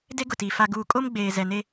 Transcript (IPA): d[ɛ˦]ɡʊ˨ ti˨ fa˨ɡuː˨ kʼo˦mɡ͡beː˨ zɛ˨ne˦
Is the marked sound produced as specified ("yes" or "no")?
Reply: no